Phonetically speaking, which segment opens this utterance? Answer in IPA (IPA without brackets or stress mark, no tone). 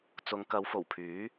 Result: t͡s